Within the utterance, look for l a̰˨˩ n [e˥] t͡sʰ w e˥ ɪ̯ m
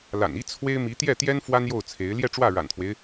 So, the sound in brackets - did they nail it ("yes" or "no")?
no